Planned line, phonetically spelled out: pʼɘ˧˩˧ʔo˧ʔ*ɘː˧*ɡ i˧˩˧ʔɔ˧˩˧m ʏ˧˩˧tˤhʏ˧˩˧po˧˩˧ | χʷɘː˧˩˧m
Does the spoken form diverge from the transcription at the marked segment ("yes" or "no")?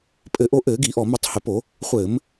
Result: yes